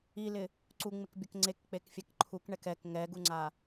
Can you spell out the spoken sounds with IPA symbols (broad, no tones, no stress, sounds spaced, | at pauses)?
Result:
i l ɪ | ǀ u ŋ͡m ɪ k bʲ ʊ k ŋ͡ǀ e k k͡p e k fʲ ɛ k ǃʰ u k ɳ ɛ k ɛ k ŋ ɛ ɡ u ŋ͡ǀ a